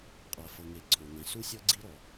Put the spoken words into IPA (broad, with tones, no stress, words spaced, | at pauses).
qʼa˩fɤ˩ŋe˩ ǀʰɔ̃˩ŋɛ̃˩ su˥sʲɤ˥ ɡ͡ǀi˥ɾɔ˩